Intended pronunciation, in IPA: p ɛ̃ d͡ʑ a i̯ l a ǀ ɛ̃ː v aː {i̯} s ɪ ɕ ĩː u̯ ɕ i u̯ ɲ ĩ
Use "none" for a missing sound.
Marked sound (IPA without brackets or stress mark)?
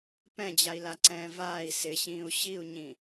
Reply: i̯